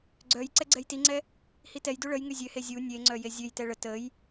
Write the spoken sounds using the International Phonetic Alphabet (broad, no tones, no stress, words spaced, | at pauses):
ɡ͡ǀœj ǀɛɡ͡ǀɛjtiŋ͡ǀɛ | hitɛjdu ɭəjŋy zʲøhe zʲu nʲeŋ͡ǀœ jezʲøjtɛ ɭə təj